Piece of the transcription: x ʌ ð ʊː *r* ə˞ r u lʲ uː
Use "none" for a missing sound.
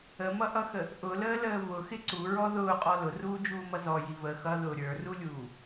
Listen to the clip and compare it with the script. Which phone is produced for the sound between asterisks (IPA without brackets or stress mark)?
ɾʲ